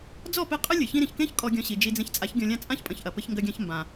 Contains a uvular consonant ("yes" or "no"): yes